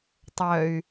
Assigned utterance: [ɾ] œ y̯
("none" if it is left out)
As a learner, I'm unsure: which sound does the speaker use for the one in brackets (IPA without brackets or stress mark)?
tˤ